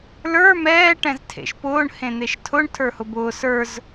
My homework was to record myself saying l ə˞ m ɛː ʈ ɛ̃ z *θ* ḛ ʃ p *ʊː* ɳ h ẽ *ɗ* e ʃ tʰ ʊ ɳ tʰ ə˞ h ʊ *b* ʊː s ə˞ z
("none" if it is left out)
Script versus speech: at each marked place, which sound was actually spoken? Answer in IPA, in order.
tʰ, ʊː, n̪, b

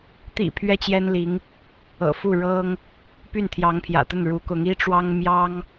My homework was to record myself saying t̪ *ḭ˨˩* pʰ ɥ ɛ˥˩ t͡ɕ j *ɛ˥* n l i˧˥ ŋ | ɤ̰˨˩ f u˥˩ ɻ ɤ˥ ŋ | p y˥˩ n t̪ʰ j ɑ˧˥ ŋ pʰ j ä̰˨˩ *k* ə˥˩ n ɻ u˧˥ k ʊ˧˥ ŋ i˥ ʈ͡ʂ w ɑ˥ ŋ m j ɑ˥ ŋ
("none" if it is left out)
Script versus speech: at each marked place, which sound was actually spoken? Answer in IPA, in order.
ḭ˨˩, ɛ˥, t̪

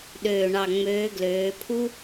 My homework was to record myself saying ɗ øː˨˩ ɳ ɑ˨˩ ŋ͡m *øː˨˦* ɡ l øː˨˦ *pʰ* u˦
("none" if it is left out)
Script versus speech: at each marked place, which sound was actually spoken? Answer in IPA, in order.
øː˨˦, pʰ

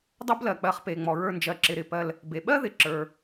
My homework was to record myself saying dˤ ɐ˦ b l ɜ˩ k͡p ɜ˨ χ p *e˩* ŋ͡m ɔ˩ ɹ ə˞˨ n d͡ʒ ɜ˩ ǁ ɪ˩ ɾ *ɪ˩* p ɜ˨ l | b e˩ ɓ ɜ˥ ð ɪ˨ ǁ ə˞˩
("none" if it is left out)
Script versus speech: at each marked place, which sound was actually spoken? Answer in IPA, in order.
e˩, ɪ˩

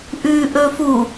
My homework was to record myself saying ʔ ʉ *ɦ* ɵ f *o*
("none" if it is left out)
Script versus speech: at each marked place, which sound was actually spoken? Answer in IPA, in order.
ʔ, u

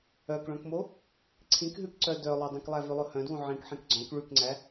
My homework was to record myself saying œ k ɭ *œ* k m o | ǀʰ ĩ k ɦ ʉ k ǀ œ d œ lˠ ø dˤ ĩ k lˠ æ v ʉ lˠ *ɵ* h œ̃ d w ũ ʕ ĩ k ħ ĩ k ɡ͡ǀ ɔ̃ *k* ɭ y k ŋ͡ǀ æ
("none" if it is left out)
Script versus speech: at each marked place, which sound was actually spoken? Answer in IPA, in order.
œ̃, ɵ, k

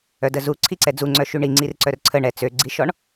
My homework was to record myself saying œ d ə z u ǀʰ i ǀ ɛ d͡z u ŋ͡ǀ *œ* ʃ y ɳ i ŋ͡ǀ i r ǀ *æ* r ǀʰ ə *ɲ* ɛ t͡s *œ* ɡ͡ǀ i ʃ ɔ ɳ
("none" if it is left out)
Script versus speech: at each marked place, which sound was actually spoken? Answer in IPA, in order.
œ, œ, ɳ, ø

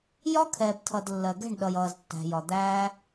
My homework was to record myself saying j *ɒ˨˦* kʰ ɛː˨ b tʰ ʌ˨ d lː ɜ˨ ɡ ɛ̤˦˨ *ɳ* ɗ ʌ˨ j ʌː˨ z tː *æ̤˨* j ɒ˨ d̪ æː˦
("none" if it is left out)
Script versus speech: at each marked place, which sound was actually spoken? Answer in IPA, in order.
ɒ˦, ɳ, æ̤˨

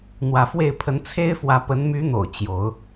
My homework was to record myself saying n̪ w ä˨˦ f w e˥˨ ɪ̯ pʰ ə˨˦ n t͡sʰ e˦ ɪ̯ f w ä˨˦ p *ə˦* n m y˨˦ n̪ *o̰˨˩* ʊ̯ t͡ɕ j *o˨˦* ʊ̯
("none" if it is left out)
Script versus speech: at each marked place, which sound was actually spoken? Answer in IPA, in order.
ə˨˦, o̰˨˩, o˨˦

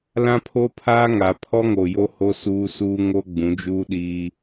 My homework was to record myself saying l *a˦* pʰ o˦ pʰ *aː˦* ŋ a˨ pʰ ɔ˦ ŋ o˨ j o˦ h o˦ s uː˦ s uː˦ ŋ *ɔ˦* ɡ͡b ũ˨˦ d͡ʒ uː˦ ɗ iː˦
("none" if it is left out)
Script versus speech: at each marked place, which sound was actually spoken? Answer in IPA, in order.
ã˦, aː˦, o˦

